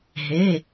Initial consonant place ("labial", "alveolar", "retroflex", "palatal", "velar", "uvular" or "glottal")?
glottal